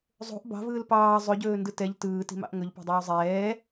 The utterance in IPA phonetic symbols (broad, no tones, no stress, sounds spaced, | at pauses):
zˤ o̤ ʔ b ɑ̤ v ɯː l p ɑː zˤ ɵ ɟ ɵː n d ɯ t ɛ ʎ t ɯː t i̤ m ɑ̰ ʔ ŋ ɵ ʎ p o̤ dˤ ɵː zˤ ɛː